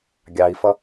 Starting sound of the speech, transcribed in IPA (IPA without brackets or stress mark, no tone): ɡʲ